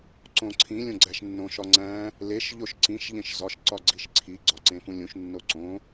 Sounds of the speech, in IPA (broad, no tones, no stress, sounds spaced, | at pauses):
ǀ õ ǀʰ ĩ lʲ õ ɡ͡ǀ æ ʃ nː õ ʃ ɒ ŋ͡ǀ æ̃ | l e ʃ ʎ o ʃ ǀ ĩ ʃ ʎ ẽ ʃ z ɒ ʃ ǀ ɒ ɡ͡ǀ i ʃ ǀʰ i ɡ͡ǀ ɒ ǀ ẽ f ũ lʲ ũ ʃ nː o ǀ õ